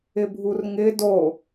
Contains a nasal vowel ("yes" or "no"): no